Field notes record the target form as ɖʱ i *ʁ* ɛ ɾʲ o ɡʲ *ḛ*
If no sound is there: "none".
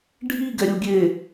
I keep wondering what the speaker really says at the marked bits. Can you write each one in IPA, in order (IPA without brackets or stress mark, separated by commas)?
ɡ, e